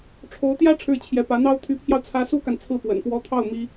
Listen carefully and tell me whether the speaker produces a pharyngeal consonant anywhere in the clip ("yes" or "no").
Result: no